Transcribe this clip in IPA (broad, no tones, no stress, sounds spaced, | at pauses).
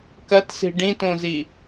k ɐ t s i̤ ɖ ĩ t õ z i